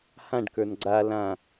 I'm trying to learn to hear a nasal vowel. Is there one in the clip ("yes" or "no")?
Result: yes